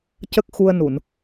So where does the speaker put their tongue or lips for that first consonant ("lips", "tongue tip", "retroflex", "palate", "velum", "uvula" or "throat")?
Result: palate